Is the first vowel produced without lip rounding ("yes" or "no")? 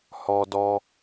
no